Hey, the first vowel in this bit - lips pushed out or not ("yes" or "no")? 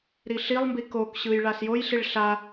no